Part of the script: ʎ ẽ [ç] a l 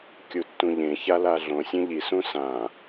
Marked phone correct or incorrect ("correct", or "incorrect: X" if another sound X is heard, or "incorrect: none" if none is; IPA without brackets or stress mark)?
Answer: correct